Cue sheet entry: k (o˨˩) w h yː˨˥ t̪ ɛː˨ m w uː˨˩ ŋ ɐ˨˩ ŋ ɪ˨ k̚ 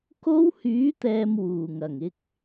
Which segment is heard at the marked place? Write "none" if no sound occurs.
o˥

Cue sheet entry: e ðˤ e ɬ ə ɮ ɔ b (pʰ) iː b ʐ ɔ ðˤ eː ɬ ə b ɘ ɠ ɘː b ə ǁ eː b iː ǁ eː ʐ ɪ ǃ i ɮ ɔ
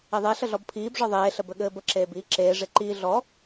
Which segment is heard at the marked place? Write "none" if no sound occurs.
pʰ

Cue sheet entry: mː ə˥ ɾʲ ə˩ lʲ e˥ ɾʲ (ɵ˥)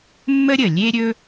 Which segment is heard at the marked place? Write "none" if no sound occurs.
ɵ˥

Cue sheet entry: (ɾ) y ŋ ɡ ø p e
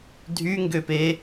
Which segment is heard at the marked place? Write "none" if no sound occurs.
dʱ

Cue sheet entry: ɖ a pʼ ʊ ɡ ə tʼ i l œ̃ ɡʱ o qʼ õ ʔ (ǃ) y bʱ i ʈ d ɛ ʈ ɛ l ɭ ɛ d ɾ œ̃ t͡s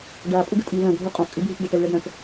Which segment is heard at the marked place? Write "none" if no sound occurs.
kʼ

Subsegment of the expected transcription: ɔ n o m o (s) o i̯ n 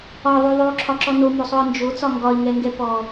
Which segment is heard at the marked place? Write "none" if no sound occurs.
sˤ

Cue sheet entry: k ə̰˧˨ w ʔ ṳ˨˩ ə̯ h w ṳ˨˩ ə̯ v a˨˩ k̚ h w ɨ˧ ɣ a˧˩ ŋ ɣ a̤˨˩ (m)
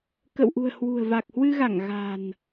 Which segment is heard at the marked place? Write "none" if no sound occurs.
n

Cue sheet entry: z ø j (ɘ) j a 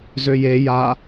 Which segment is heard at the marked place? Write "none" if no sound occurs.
e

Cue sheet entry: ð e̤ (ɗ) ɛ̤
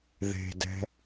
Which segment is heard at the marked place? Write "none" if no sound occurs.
d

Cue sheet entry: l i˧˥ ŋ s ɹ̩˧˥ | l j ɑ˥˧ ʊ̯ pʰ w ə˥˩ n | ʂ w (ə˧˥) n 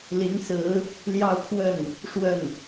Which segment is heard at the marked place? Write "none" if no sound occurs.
ə˥˩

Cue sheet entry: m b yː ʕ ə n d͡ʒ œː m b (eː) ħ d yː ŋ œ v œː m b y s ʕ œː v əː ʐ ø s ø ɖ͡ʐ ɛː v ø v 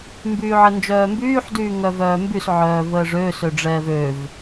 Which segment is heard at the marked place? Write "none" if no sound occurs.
yː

